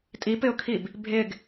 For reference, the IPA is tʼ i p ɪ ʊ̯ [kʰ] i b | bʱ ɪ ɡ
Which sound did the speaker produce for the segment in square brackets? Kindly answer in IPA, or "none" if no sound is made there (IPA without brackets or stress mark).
kʰ